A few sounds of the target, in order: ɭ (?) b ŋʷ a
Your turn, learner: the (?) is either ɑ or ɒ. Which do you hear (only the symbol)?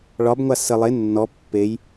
ɒ